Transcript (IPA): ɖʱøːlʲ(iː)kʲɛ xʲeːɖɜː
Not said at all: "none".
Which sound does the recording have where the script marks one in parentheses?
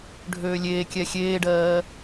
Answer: eː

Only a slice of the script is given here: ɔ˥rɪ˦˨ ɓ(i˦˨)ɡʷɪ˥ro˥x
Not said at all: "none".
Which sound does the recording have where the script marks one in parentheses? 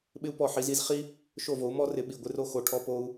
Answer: i˦˨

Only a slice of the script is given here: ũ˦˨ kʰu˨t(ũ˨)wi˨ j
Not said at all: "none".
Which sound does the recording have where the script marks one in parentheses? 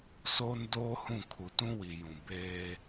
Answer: ũ˦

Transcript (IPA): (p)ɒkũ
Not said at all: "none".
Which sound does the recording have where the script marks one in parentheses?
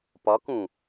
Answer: p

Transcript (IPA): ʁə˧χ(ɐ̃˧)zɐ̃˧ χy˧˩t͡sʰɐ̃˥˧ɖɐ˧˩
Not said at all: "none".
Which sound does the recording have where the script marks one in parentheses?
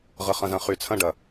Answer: ɐ̃˧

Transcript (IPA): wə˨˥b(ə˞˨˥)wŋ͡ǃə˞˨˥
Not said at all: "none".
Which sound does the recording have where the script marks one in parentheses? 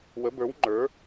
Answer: ə˞˨˥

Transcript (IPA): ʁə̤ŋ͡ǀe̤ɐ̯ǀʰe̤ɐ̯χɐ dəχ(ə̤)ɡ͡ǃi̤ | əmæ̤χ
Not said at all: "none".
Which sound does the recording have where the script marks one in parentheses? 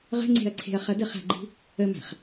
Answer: æ̤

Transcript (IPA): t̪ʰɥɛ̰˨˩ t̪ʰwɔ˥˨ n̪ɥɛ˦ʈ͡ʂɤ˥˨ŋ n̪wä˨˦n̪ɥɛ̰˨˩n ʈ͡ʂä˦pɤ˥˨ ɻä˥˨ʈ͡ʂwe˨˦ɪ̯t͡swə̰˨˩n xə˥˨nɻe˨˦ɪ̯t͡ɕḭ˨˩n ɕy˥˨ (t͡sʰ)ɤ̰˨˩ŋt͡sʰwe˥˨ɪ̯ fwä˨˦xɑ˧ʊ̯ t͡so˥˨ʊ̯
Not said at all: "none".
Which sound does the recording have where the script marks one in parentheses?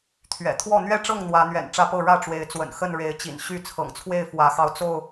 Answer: t͡sʰ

